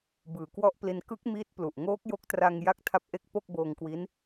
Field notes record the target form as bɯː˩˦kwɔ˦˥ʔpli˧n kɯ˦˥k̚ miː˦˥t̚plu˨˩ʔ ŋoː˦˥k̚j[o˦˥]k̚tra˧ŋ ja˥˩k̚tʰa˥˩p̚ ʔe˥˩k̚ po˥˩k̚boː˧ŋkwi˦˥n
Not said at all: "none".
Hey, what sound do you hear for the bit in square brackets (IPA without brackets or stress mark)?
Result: o˦˥